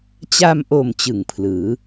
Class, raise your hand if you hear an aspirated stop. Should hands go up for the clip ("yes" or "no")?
yes